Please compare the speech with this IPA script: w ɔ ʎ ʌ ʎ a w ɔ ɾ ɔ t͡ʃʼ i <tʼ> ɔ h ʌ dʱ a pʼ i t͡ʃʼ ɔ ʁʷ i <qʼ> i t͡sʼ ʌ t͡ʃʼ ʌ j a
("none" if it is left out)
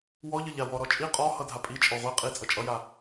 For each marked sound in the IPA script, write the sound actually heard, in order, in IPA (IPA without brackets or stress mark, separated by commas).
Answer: qʼ, qʼ